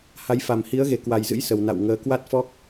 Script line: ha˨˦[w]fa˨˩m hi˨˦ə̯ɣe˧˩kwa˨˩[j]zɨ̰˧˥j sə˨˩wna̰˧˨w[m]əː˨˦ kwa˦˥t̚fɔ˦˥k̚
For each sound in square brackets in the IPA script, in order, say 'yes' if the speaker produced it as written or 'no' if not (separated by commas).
no, yes, no